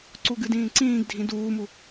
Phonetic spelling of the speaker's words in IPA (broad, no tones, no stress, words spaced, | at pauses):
ǀuɡɨdĩːǀĩːɡ dʱĩduːmu